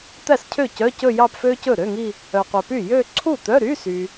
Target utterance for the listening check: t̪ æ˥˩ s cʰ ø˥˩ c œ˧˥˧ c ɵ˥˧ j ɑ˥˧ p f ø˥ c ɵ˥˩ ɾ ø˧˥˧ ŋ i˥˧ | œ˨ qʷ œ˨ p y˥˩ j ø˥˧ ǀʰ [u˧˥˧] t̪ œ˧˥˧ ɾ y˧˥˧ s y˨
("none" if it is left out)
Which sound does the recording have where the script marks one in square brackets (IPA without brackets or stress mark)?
u˥˩